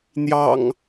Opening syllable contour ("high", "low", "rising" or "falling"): low